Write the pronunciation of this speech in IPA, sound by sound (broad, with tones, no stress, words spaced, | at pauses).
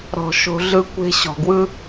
ɾɔ̤˩ ʃo̤˨ɮɯ˦ kʷe̤˦ ɕɔ̤˩ɡwɯ˥